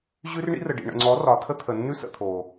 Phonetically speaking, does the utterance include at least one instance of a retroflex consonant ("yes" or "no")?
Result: yes